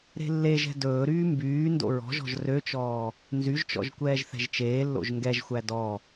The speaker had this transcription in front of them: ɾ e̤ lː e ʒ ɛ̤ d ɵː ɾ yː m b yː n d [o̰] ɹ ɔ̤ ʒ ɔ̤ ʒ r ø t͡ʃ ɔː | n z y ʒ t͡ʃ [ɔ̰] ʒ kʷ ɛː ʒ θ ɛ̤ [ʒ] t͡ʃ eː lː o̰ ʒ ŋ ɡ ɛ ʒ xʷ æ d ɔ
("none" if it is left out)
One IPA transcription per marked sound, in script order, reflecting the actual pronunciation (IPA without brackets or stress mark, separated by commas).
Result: o̰, ɔ̰, ʒ